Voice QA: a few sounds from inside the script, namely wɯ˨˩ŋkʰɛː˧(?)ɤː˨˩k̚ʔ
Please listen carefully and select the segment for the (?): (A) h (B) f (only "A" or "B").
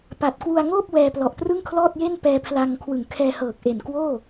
A